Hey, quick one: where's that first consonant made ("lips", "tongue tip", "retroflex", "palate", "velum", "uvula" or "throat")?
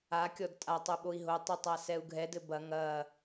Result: velum